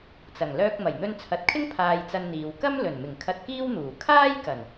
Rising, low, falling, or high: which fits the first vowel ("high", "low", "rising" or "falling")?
low